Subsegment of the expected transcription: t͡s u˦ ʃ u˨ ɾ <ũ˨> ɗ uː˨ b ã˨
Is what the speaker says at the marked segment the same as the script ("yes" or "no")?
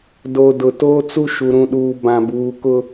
yes